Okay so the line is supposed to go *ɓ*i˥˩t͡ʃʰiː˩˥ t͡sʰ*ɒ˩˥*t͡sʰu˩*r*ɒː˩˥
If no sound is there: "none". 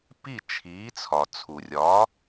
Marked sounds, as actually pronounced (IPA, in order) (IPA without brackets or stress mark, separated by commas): p, ɒ˩, rʲ